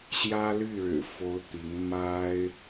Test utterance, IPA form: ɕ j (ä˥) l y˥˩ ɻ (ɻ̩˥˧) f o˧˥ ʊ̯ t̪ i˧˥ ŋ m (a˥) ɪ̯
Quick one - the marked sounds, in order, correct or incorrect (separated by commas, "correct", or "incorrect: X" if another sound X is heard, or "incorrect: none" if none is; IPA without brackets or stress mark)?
correct, incorrect: ɻ̩˨˩, correct